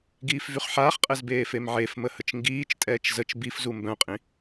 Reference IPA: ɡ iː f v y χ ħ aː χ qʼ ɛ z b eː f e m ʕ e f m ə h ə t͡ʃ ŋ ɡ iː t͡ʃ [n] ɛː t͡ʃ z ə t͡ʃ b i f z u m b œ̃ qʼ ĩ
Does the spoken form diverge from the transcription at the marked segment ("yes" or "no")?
yes